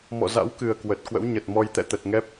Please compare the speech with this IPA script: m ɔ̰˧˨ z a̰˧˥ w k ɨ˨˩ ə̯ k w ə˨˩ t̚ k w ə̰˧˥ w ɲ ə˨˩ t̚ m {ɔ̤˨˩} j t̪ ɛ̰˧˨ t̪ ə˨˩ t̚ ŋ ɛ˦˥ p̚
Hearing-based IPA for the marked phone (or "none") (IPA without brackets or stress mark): ɔ˧